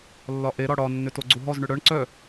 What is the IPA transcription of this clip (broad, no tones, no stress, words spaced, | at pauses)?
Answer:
lːɒʔeɾɒ ɽɒnːʏ toɡ͡ǀuɦɔzɳʏ ɽœɳ ǀœ